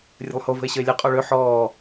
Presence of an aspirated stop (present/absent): absent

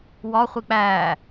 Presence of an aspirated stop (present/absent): absent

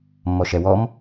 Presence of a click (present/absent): absent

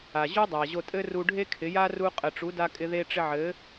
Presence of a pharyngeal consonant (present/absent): present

